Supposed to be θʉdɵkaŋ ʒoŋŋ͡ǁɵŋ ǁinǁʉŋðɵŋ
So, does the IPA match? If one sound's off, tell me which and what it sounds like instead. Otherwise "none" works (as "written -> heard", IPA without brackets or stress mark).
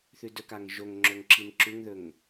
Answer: none